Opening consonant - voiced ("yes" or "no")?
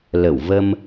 yes